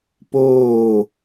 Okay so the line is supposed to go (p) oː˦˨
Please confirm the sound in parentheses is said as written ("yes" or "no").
yes